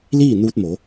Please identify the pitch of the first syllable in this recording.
falling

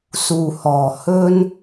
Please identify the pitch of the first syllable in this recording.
low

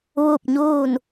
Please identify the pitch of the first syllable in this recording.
falling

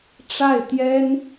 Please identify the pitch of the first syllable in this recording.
falling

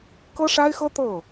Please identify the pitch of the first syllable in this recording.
high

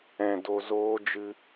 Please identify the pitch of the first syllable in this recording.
low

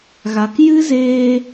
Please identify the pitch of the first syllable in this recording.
low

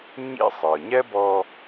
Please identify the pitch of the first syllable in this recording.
high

